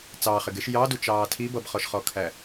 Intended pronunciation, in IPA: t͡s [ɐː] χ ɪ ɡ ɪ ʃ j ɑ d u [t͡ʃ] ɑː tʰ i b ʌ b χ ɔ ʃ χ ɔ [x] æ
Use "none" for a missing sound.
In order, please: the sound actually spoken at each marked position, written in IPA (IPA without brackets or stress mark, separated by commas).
ɑː, t͡ʃ, kʰ